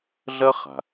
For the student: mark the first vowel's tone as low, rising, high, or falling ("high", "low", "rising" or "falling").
high